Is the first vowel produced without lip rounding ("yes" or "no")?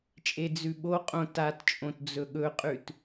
yes